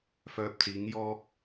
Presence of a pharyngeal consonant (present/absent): absent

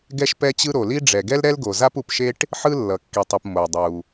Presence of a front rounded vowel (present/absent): absent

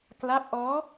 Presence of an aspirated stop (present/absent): absent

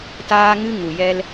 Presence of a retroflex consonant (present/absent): absent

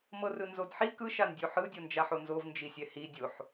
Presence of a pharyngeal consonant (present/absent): present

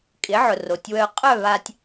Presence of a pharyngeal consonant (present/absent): present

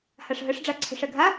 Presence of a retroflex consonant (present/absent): present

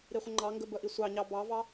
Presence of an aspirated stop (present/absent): absent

